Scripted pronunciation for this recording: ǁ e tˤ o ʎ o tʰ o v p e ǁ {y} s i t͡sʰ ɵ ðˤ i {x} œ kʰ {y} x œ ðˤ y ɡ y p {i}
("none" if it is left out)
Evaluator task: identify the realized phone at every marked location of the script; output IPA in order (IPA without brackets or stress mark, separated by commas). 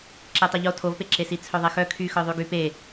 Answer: e, x, y, e